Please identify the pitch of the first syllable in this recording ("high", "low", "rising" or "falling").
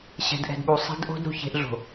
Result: low